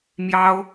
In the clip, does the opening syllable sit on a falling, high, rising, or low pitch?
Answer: high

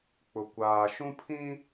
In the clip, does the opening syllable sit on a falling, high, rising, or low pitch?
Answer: low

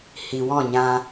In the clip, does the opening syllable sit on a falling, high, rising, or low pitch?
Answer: low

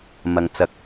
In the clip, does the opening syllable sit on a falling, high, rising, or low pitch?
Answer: low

